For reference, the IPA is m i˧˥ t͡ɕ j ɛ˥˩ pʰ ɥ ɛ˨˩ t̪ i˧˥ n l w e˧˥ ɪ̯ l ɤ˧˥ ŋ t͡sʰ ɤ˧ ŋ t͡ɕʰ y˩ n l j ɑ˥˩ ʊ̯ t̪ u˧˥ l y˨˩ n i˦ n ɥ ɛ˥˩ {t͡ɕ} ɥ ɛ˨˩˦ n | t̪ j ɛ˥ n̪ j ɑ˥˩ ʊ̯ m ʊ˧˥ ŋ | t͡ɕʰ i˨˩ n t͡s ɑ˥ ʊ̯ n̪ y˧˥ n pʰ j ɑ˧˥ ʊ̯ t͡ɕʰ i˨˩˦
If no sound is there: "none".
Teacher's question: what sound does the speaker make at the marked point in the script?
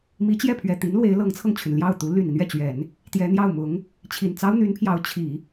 t͡ɕ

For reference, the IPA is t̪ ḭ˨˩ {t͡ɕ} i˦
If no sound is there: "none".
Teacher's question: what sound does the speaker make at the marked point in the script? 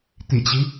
t͡ɕ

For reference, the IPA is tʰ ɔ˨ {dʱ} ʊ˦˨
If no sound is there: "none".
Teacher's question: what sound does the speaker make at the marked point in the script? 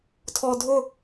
dʱ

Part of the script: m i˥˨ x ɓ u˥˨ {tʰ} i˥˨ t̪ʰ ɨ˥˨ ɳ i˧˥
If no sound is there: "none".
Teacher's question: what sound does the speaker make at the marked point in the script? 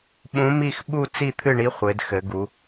t͡s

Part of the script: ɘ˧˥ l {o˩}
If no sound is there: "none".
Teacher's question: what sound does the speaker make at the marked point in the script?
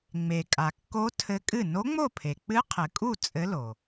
o˩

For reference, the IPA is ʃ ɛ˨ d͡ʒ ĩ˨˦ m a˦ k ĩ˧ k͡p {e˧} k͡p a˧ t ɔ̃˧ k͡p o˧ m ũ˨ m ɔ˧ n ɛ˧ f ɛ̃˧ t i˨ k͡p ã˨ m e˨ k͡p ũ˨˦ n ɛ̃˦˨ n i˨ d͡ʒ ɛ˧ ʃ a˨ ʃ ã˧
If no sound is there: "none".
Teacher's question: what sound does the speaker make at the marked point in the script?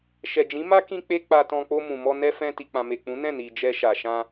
e˧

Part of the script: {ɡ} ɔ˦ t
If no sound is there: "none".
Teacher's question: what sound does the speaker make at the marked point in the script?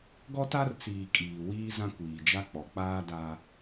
ɡ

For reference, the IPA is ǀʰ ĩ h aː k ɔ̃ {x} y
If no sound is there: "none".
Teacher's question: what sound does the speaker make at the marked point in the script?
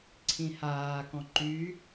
ǃ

